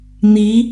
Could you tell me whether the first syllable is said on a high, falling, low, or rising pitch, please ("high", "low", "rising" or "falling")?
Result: rising